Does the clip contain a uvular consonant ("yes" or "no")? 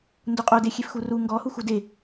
yes